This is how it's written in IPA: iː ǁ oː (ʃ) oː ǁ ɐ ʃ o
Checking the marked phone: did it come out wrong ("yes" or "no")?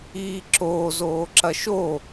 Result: yes